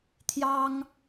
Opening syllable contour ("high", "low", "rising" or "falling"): high